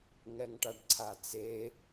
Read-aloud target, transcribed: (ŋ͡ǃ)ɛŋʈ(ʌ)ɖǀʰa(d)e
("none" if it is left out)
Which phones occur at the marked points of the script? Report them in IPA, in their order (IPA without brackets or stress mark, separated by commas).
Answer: ŋ, a, t͡s